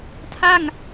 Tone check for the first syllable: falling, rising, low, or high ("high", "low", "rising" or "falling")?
falling